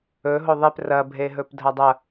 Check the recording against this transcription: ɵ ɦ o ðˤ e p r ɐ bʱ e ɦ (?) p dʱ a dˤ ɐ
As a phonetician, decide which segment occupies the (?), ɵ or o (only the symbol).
ɵ